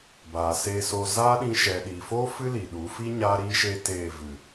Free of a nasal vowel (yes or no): no